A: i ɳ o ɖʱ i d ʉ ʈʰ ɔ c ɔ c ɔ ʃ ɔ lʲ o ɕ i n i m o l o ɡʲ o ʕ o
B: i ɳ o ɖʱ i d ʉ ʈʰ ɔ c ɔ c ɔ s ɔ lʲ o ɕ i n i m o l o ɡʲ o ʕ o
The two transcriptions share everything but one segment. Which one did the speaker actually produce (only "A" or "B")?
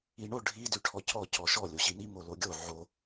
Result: A